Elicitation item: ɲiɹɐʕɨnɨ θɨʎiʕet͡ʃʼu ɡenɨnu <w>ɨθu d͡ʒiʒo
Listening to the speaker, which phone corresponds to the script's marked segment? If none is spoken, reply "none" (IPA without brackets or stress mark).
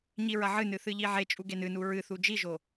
ɹ